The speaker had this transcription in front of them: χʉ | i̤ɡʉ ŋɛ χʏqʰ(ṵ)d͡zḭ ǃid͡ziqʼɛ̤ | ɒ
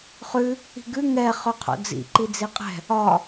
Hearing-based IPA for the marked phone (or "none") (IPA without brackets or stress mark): o̰